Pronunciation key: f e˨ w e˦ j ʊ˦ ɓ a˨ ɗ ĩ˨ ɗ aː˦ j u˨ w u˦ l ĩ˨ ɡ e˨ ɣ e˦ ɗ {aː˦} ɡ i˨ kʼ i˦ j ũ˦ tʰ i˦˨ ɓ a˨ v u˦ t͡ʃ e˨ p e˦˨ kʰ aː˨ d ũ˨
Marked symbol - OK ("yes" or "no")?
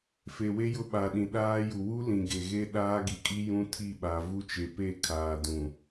yes